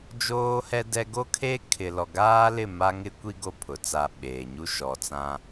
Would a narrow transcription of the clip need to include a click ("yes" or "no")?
no